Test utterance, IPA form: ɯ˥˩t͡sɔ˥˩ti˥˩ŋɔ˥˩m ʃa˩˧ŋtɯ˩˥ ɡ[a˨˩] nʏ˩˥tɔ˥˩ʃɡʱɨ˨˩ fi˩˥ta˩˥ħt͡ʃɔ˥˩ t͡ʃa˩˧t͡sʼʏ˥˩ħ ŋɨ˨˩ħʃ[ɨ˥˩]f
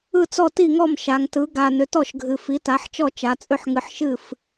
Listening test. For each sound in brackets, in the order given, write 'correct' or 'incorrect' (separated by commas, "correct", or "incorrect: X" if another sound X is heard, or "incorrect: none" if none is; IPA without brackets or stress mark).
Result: correct, correct